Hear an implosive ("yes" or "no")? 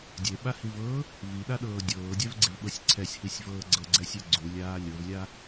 yes